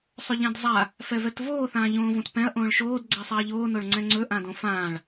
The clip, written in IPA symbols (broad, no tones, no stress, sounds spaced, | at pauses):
sˤ ɵ ʎ ɛ̃ d zˤ a | f ɛ v ɛ t v oː θ ãː ʎ õː v õ t p ɛ̃ ɐ̯ ʔ õː ɭ ʃ oː d ɡ͡ǀ ɛ sˤ a ɐ̯ ʎ oː n o ɭ ŋ͡ǀ ɛ̃ ŋ͡ǀ ɵ ʔ ã d õ f ãː ɭ